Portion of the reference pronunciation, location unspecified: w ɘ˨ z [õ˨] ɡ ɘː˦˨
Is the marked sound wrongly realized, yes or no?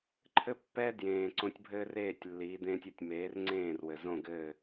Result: yes